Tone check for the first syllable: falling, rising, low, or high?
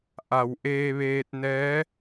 low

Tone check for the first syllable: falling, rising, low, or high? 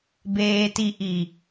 low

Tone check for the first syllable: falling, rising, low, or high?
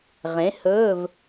rising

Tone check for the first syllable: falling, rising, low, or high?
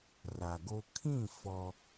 low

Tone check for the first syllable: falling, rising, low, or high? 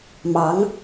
rising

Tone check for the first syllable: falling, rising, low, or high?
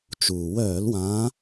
low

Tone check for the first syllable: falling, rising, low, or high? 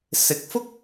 rising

